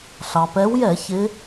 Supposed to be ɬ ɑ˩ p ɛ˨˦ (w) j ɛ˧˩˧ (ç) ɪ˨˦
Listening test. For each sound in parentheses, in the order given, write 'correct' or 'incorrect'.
correct, correct

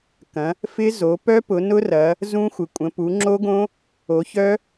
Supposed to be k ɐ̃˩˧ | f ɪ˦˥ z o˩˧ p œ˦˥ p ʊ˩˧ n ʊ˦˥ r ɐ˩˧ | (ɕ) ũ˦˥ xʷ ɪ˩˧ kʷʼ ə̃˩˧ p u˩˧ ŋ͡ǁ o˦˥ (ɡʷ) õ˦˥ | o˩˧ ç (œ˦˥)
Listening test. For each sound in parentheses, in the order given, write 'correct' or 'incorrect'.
incorrect: z, incorrect: ɡ, correct

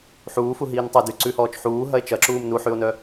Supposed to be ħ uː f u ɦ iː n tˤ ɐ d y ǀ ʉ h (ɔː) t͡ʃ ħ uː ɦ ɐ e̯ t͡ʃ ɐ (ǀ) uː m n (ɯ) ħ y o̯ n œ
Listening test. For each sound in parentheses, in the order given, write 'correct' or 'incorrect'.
correct, incorrect: ǁ, incorrect: u

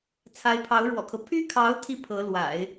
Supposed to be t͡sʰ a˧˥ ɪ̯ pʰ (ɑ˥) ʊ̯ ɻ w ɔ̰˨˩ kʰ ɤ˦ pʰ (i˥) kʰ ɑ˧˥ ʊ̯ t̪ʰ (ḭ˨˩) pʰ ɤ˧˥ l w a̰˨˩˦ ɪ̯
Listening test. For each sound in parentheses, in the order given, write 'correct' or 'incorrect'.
incorrect: ɑ˧˥, incorrect: y˥, incorrect: i˥

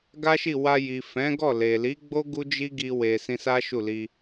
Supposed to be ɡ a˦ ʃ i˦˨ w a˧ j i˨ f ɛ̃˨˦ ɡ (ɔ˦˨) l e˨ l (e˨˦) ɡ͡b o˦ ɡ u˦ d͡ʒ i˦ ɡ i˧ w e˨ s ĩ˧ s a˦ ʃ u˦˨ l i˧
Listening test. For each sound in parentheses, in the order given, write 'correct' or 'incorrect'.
correct, incorrect: i˨˦

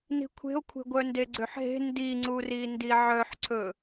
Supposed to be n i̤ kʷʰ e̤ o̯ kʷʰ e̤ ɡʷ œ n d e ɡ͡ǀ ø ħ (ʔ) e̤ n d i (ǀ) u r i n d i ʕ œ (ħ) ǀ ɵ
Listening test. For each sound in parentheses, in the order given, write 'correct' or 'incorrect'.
incorrect: ɦ, incorrect: ŋ͡ǀ, correct

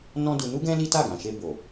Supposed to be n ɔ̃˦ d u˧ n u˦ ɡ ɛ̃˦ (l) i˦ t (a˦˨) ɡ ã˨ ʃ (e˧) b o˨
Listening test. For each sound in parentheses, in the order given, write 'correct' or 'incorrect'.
correct, correct, correct

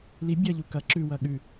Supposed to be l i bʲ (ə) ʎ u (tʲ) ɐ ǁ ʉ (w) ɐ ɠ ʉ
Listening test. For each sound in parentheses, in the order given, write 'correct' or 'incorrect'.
incorrect: ɐ, incorrect: k, correct

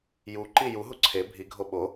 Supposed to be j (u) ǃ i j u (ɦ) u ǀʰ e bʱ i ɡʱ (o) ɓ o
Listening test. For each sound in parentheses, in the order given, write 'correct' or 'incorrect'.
correct, correct, correct

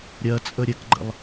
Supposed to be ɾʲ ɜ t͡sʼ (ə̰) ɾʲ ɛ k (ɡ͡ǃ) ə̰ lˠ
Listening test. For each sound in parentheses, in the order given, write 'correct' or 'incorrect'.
incorrect: ə, correct

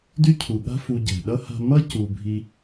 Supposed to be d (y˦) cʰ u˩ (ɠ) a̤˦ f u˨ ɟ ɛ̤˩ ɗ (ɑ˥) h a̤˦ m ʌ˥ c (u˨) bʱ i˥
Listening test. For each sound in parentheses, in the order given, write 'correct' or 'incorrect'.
correct, correct, incorrect: ʌ˥, correct

